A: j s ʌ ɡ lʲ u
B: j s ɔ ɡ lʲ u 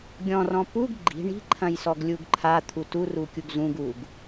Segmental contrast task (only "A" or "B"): B